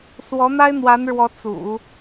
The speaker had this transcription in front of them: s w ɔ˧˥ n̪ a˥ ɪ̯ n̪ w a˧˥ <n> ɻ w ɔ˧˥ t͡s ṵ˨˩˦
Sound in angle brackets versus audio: correct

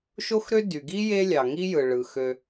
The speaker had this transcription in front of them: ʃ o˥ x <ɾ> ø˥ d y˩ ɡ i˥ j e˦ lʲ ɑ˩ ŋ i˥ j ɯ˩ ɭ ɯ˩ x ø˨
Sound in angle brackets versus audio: correct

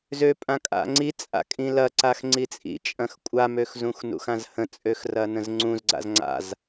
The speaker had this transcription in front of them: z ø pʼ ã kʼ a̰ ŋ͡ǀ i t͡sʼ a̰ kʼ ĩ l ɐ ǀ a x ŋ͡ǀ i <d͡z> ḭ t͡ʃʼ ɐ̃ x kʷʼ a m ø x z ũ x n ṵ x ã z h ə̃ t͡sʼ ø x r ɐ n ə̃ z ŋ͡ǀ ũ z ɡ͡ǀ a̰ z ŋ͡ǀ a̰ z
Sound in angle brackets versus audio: incorrect: t͡sʼ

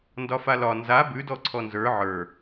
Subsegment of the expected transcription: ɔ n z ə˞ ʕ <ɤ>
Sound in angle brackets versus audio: incorrect: ə˞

